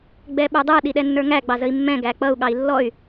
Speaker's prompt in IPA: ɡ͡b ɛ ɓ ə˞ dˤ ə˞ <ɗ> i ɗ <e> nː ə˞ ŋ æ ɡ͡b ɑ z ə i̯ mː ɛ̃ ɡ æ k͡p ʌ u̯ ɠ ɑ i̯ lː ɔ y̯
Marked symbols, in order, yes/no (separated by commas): yes, no